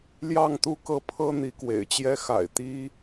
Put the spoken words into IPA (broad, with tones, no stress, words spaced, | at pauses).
ljɑ˥˨ŋt̪u˥˨kɤ˥˨pʰɤ˦ n̪i˨˦kwḛ˨˩ɪ̯t͡ɕjɛ˦ xa̰˨˩ɪ̯t̪i˦